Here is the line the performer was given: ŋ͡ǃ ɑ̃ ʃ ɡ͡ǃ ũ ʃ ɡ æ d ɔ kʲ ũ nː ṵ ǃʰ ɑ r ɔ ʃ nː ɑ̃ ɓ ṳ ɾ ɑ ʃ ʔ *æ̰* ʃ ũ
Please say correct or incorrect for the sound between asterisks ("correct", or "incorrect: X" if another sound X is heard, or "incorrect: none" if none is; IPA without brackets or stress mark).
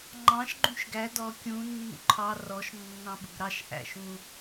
correct